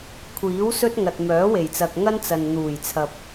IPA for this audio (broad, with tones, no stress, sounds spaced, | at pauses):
kʷʰ iː˨˥ w s ɵ˥ t̚ ŋ ɐ˨ t̚ m œː˨˥ w e˨˩ j t͡s ɐ˨ k̚ ŋ ɐ˥ n t͡s ɐ˨ n n̪ uː˨˩ j t͡sʰ ɐ˨ p̚